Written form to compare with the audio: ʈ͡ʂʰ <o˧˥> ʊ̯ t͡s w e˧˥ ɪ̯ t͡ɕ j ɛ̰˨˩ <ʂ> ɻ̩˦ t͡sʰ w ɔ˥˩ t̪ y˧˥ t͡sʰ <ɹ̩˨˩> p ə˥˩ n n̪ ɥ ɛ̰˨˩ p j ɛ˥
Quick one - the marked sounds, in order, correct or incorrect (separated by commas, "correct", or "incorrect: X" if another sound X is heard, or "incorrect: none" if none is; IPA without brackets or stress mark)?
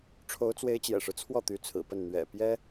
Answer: correct, correct, correct